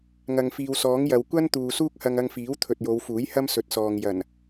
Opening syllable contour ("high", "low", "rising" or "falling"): low